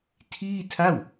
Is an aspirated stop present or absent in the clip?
present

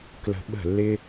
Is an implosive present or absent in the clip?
present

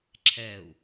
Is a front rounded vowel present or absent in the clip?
absent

